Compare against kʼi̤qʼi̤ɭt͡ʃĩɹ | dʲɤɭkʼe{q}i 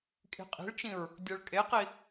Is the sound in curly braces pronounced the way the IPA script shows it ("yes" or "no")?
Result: yes